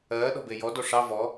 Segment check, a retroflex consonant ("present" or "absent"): present